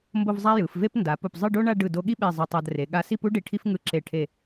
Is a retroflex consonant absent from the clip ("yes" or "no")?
no